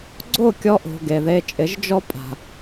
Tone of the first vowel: falling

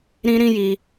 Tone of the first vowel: high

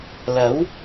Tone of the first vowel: rising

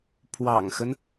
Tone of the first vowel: low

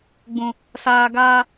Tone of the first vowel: low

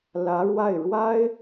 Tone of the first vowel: rising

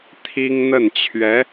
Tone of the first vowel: high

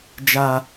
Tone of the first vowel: high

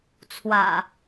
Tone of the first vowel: low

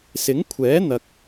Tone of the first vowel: rising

